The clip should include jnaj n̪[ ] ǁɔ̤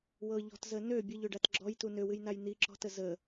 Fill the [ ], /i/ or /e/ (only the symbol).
i